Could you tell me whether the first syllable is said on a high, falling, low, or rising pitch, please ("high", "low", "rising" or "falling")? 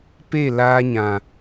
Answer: falling